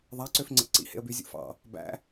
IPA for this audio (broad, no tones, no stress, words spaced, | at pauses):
ðˤæǀøfŋ͡ǀḛ ǀḭhḛə̯by zʲṵfɑ̰ | bæ̰